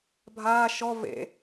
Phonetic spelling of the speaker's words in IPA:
bʱ aː ʃ ɔ v ḛ

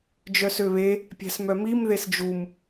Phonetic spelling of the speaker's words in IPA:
d͡ʒ œ s ø β e | pʲ æ̤ s m œ m i m ð e s d͡ʒ u m

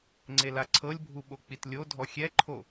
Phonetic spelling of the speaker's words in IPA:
ŋ͡ǀ e l a ǀʰ ɤ lʲ bʱ u ɓ o k͡p i t lʲ o dʱ ɔ xʲ ɛ ǃʰ o

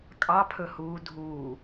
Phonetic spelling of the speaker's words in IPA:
kʼ ɑ pʰ ɵ h uː dʱ uː

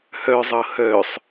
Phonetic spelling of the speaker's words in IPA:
h œ zˤ ɤ h œ sˤ

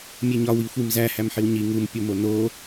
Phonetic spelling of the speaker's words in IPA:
mʲ e ɲ ɒ w i xʷ i m z æ h æ m ħ i w ɲ i ŋ u m pʲ o m o n o

